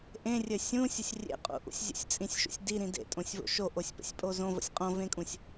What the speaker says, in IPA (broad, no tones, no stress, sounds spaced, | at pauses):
ʔ ẽ rʲ ɘ sʲ ũ sʲ ə sʲ rʲ ḛ qʼ ṵ ʔ ṵ sʲ zʲ ə̰ sʲ t͡sʼ ĩ sʲ ʃ ṵ sʲ d i ɾ ĩ d ḛ tʼ õ sʲ v o̰ ʃ o ʔ o sʲ p ə̰ sʲ pʼ o z õ v ə̰ sʲ qʼ õ v ẽ kʼ ũ sʲ